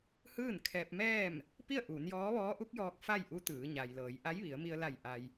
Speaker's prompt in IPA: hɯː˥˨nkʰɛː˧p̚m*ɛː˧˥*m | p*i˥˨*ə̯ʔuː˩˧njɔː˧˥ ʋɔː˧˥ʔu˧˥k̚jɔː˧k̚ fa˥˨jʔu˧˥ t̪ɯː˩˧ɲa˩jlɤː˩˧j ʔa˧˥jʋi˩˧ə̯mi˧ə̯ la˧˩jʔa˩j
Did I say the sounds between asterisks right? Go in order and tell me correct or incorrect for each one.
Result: incorrect: ɛː˥˨, correct

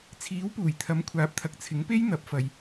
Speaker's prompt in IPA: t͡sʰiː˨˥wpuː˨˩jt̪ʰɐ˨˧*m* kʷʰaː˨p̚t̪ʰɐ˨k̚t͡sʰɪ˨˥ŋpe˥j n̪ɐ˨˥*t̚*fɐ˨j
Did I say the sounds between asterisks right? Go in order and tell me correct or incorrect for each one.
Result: correct, incorrect: p̚

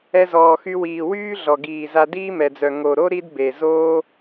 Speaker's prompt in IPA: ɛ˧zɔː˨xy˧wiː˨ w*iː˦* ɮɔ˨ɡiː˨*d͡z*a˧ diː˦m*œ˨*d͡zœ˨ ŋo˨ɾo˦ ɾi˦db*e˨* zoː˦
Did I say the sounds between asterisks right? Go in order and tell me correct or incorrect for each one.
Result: incorrect: yː˦, incorrect: z, incorrect: ɛ˨, correct

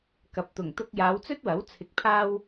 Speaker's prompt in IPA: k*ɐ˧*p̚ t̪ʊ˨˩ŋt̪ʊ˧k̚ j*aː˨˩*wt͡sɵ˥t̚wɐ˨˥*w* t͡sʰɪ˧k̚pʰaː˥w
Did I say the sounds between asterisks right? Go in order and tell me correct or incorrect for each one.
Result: incorrect: ɐ˨, incorrect: aː˨˧, correct

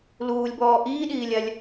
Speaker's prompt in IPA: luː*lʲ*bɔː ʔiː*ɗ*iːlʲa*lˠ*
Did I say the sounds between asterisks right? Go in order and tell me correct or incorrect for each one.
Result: correct, correct, incorrect: lʲ

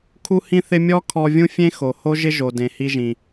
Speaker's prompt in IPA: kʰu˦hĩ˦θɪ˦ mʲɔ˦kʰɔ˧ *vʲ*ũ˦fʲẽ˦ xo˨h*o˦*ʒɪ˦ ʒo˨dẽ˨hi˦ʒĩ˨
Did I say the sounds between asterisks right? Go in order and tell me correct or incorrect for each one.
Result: correct, correct

